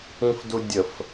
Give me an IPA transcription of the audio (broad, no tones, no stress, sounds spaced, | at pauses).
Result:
ĩ f d u dʲ ə f